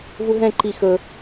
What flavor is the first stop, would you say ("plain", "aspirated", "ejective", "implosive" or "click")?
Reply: click